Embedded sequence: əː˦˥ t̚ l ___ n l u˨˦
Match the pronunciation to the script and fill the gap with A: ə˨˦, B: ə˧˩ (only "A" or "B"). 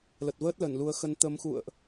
B